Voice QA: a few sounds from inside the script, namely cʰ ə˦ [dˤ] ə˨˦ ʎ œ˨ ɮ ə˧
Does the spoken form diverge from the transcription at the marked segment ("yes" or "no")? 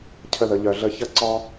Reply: yes